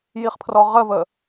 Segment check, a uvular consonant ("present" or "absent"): present